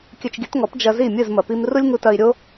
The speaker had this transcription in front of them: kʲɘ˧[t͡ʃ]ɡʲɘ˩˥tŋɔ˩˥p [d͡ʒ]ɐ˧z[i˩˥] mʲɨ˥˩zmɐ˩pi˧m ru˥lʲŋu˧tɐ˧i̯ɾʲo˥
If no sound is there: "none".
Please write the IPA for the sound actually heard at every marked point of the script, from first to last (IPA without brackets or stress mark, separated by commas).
t͡ʃ, d͡ʒ, i˥˩